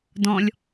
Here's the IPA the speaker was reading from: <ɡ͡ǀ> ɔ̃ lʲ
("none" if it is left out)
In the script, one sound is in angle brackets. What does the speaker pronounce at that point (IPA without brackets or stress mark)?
d